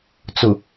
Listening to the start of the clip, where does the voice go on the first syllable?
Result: low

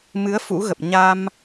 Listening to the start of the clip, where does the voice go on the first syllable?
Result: rising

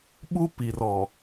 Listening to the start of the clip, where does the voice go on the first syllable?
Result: high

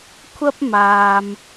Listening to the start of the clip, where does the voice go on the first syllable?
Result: high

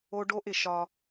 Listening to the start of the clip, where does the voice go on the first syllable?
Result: high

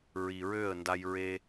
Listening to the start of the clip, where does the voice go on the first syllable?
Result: low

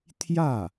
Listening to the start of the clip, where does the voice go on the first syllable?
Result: falling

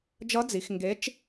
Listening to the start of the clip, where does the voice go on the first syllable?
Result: rising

